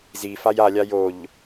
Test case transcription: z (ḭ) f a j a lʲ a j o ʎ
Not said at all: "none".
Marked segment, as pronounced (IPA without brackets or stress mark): i